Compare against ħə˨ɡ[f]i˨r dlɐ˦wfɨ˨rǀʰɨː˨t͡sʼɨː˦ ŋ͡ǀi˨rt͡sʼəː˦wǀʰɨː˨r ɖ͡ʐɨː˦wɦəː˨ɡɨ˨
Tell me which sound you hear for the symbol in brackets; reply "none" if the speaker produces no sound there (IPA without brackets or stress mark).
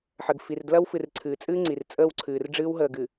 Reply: f